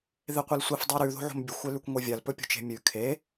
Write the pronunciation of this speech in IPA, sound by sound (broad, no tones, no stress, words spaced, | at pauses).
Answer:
ðeqʷelsʷif dˤʉɾʉ ðo̤ʕo̤mbʲɵxʷ elʉkʷŋʷevʲal pɵpʲo̤t͡ʃe̤mʲʉ kʰe